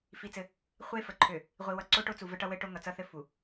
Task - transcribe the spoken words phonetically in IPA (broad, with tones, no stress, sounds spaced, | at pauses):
f i˦ t͡s ɘ˦ | χʷ e˦ f ə˨ ǃʰ ø˨ | ʁʷ i˨ w ʌ˨ ǀ o˦ ʈ o˦ t͡s u˨ v ə˦ ʈ ʌ˦ w ɘ˦ ʈ o˦ ŋ ʌ˨ t͡s ʌ˦ θ ɘ˦ f u˨